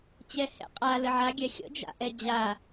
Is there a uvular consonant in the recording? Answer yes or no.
yes